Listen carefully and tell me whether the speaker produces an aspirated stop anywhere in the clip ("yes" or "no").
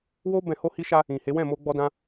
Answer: no